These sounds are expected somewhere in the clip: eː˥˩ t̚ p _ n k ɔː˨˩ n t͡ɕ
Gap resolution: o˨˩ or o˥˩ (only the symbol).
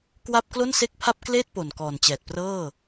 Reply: o˨˩